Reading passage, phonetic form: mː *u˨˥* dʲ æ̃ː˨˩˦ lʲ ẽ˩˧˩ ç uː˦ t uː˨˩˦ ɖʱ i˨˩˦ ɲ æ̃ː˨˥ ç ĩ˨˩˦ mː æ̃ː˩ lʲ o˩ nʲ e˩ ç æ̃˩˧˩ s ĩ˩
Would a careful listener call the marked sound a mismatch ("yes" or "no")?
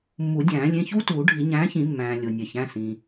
yes